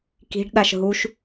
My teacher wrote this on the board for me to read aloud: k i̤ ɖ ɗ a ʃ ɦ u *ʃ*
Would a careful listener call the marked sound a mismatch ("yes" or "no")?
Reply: no